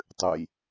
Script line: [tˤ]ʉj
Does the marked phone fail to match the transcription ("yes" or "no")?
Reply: no